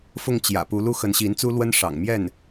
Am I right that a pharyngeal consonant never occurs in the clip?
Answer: yes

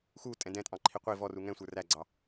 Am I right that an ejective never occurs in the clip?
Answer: no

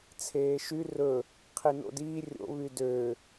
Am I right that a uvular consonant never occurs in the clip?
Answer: no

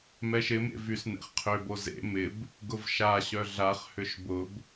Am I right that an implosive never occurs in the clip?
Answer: yes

